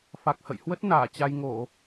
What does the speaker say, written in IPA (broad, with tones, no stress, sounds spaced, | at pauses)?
f a˨˩ k̚ h ə̰˧˨ j h w ə˦˥ t̚ n aː˧˩ t͡ɕ a˧ j ŋ o˧˩˨